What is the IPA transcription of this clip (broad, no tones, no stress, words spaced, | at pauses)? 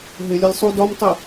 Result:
ɦɪlʲɒlʲ sˤu dɒmtˤi